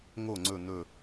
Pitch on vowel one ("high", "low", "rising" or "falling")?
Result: falling